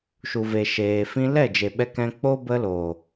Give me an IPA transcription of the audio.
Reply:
ʃ u˨ v e˨ ʃ eː˨ f ĩ˧ l ɛ˦˨ d͡ʒ e˨ ɓ ɛ˧ k ɛ̃˧ k͡p o˦ b ə˧ l oː˨

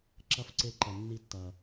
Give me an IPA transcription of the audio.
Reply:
ǁ ɐ˦˨ f ǀ e˦ ǃ ɛ˨ nː i˦ tː ɐ˨

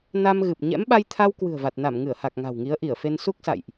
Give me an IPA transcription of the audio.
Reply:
n a˧ m ɣ ɨ˨˩ p̚ ɲ ɛ̰˧˥ m ɓ a˧ j t̪ʰ a˧ w k w ɨ̤˨˩ ə̯ v a˨˩ t̚ n a˧˩ m ŋ ɨ˧˩ ə̯ h a˨˩ k̚ ŋ a̤˨˩ w ŋ i˨˦ ə̯ ʔ i˧˩ ə̯ f e˧ n s u˦˥ k̚ s a̰˧˨ j ʔ

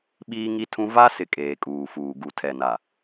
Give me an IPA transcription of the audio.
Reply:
ɓ iː˦ ŋ i˦ tʰ ũ˦ v a˦ s ɪ˦ kʼ eː˨ kʼ uː˨ f uː˨ ɡ u˨ tʰ ɛ˨ n a˨

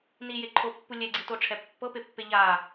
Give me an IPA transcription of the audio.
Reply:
n i j e ǃʰ o pː u lʲ ɛ ɡ͡ǀ i t o ʈ͡ʂʰ ɛ pː ɤ p e pː e ʎ a

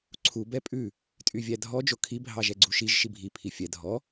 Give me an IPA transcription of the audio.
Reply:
ǀʰ u b ɛ pʼ ʉ | tʼ y vʲ æ dʱ ɔ d͡ʒ o kʰ i bʱ ɑ ʒ ɛ ɡ͡ǀ u ʃ i ʒ ʃ i bʱ i pʰ i fʲ ɛ dʱ ɔ

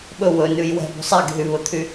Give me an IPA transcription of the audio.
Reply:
ɓ ɵ w ɵ n ʉ j w ɛ̤ b ṳ sˤ ɛ ɡ ɦ y β ɵ t̪ʰ y

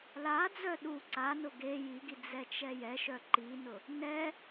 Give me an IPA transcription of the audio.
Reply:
l a d͡z œ ɗ u ǀ a n ʊ ɡ e j i ɡ i d͡z ɛ t͡ʃ ɛ j ɛ ʃ œ ǃ i n ʊ | n ɛ

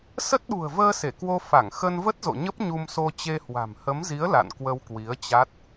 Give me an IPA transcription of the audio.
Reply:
s ə˦˥ t̚ ɗ ṳ˨˩ ə̯ v əː˧ s e˧˩ k w o˧ f a˧˩ ŋ x ə˧ n v ə˦˥ t̚ z o̰˧˨ ɲ ə˦˥ p̚ ɲ u˧ m s o˧ t͡ɕ e˧ h w a̤˨˩ m h ə˨˦ m z i˨˦ ə̯ l a̰˧˨ n k w ə˧ w k w i˨˦ ə̯ t͡ɕ a˦˥ t̚

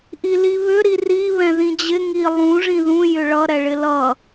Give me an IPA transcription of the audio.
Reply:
ʔ i l i β ʏ ɾ i r i β ɛ̃ ð ĩ d͡ʑ ɪ ŋ i lˠ ũ ʐ ĩ ð ũ j ʏ ɭ ʌ ɾ ɛ ɭ ɪ l ʌ

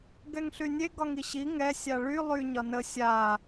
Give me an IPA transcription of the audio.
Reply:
ɡ ɛ ŋ ɬ y nʲ e ɡ ɒ ŋ i ɕ i ŋ ɛ sʲ a ɭ y lˠ y ɲ ɒ n ə sʲ a

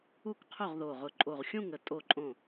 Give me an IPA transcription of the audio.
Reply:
u˦˨ k qʰ o˦˨ ʁ ð o˨˩ ʁ ʊ˨˩ ǃʼ o˨˩ ʁ xʲ ũ˦˨ ŋ ə˨˩ tʼ o˦˨ ǃʼ õ˦˨

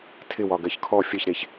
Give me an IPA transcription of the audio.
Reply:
tʰ ɪ w ɒ ɡ ɜ ç kʰ ɔ fʲ ə ç ɾ e ç

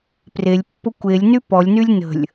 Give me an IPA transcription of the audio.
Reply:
p r e lʲ pː ʊ kʷ e lʲ n y p ɔ lʲ n y lʲ n ə̤ lʲ

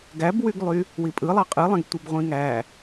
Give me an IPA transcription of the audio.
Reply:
ɡ æ b w y ɡ lˠ y | w i pʼ ɯ lˠ ɑ qʼ ɯ lˠ ẽ ɡ tʷ i b ʁʷ ĩ ŋ æ

